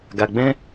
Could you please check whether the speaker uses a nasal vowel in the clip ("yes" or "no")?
yes